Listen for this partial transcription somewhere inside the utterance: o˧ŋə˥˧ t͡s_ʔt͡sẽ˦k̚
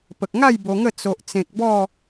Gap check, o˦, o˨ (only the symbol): o˦